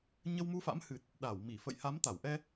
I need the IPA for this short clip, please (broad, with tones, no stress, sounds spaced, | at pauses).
ɲ ə˧ w m u˧ f a̰˧˥ m h ɨ˨˩ t̚ | ɗ a˧˩ w m i˧˩ f ə̰˧˨ j h a˨˦ m t̪ a˧˩ w ʔ ɛ˧